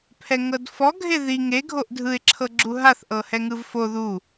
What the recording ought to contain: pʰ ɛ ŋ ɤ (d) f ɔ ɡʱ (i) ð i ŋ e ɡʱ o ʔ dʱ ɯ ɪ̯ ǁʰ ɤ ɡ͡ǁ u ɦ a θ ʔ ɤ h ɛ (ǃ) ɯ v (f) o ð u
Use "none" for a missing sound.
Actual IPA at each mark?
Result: d, e, ŋ, f

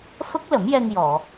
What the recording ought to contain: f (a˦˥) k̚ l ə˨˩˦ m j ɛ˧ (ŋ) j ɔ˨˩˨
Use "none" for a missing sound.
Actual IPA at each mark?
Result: ə˦˥, ŋ

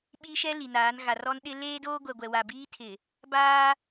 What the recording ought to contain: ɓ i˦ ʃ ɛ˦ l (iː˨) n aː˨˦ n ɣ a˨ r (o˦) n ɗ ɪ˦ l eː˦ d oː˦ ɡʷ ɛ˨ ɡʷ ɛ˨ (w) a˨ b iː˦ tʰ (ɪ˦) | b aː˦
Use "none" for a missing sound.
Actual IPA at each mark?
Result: i˨, ɔ˦, w, ɪ˨

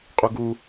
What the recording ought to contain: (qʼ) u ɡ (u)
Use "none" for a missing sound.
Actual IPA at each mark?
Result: qʼ, u

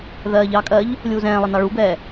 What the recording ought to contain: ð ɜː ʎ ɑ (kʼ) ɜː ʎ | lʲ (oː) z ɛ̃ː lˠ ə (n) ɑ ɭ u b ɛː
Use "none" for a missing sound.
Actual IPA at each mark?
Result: kʼ, uː, n

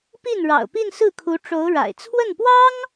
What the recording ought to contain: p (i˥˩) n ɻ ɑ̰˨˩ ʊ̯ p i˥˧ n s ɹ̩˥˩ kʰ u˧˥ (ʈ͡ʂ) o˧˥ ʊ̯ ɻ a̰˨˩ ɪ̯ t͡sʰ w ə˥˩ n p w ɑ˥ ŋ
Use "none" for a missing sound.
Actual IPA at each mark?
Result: i˥˩, ʈ͡ʂ

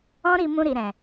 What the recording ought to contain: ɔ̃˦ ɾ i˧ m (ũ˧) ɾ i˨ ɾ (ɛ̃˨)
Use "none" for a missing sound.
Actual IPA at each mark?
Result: ũ˧, ɛ̃˨

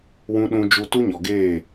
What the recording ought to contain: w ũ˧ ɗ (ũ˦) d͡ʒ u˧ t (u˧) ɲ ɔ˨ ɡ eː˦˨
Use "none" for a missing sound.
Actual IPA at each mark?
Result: ũ˧, u˦

